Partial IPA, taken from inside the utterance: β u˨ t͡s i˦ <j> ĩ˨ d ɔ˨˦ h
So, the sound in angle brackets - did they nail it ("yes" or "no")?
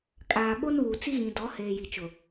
no